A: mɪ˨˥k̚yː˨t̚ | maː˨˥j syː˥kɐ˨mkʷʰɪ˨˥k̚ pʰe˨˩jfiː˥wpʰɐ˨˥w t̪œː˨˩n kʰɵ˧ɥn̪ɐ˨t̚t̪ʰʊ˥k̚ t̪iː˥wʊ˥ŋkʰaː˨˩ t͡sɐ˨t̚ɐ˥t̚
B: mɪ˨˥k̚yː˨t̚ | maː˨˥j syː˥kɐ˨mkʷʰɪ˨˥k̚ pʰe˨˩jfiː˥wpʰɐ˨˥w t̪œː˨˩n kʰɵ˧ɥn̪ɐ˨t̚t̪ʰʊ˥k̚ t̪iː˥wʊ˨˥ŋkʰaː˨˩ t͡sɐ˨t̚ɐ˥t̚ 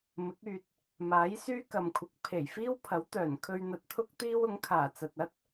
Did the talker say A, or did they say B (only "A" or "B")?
B